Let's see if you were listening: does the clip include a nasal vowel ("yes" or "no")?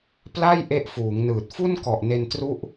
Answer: no